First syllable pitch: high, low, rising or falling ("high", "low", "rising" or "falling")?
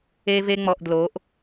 high